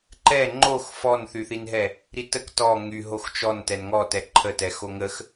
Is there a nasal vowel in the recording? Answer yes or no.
no